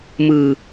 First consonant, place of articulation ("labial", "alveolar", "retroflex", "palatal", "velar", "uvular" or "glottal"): labial